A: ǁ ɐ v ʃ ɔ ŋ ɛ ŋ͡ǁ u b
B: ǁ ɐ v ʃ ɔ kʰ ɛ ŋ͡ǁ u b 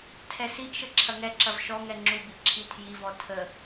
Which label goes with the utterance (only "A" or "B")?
A